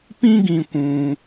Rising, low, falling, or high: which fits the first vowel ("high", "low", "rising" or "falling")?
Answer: high